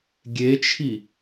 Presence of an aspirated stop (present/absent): present